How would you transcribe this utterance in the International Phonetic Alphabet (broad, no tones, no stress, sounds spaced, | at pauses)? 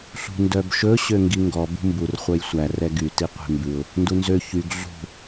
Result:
ɬ ṳ n d œ b ʃ ɵ ɕ ø ŋ ɡ i ŋ ɡ ɔ b ṳ m b u r χʷ œ j sʷ æ r ɛ ɡ y t i qʷ e̤ m b ʉ ʊ̯ | n d u n z ø ç y ɡ ɮ ṳ